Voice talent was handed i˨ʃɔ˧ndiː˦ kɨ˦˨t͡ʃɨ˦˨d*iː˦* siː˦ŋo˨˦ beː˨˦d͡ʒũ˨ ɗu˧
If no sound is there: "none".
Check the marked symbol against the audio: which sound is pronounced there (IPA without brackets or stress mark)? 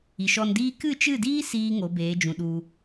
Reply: iː˦